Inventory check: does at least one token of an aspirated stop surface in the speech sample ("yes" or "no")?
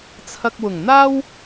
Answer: yes